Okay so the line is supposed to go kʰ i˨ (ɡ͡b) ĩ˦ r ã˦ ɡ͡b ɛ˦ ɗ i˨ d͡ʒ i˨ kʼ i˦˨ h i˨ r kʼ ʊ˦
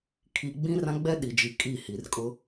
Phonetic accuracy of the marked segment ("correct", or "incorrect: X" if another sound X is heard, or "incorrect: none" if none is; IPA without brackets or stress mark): correct